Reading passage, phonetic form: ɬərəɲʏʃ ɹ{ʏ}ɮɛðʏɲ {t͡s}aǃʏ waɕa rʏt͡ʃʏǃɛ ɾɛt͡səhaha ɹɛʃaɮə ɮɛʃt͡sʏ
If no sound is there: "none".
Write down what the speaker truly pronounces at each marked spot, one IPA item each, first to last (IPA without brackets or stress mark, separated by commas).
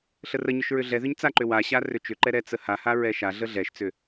ʏ, t͡s